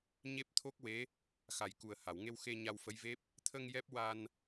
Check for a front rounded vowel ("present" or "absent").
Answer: absent